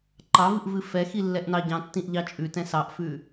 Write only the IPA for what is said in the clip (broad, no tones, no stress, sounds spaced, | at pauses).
ǃ ɑ v ɨ ʔ v ɨ f ɛ x i lː ɛ ʔ n ɑ ɟ ɑ̃ tː ĩ ʔ ʎ ɑ t͡ʃʼ ʉ t ɛ̃ s ɑ ʔ f ʉ